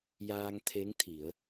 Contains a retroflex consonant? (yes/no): no